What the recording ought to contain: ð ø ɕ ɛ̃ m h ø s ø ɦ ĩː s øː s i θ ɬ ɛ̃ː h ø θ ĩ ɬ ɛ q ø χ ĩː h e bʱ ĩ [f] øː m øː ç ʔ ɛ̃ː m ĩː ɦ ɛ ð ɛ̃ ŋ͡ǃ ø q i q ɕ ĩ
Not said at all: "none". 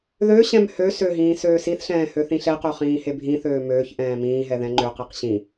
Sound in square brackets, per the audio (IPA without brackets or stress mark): θ